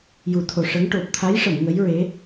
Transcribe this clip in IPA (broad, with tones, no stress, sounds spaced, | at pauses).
j u˨˩˦ t̪ʰ o˨˩ ʂ ə˧˥ ŋ ʈ o˨˩ p̚ t̪ʰ a˧˥ j ʂ ə˨˩˨ m ŋ ə˧˥ j ɹ e˧˥